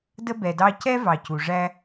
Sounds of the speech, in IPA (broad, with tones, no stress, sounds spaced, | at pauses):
d ə˥ b ɛ˨ d ɑ˦ c ɛ˥ v ɑ˨ c u˩ ʐ æ˦